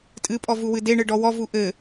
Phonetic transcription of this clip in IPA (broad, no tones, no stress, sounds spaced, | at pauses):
tʼ ɨ pʼ ɔ v u w ɨ d e ɳ ɨ ɖ ɔ w ɔ v u ʔ ɘ